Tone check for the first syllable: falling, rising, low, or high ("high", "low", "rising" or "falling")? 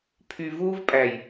low